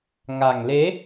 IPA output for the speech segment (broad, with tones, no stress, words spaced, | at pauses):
ŋa˨˩ŋle˨˦